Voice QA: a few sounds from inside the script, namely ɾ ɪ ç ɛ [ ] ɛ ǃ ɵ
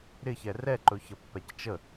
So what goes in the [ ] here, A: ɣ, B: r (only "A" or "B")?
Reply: B